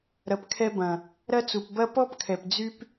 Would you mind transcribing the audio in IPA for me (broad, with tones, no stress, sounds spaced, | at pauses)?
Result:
ɾ ɐ˨ p kʰ ɛ˧ b ɐ̃˨ | ɾ ɐ˦ t͡s u˨ p b ɐ˦ p ɔ˦ p kʰ ɛ˨ p d͡z y˦ p